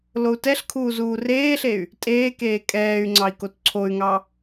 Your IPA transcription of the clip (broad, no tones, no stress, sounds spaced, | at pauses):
l o u̯ t ɛ ɬ kʰ uː z uː r eː ɬ e y̯ | tʼ eː k eː kʼ ɛː y̯ ŋ͡ǀ ɑ i̯ k o t ǀʰ o y̯ ŋ ɑ